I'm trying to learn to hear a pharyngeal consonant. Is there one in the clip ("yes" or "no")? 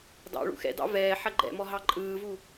yes